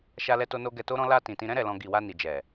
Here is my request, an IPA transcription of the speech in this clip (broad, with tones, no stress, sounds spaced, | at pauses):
ʃ a˧ l ɛ˧ t o˧ n o˧ ɡ ɛ˧ t o˦ ɾ ɔ̃˦ l a˧ t ĩ˨ t ĩ˧ ɾ ɛ̃˦ ɾ ɛ˧ l ɔ̃˧ ɡ i˨ w a˧ n i˨ d͡ʒ ɛ˨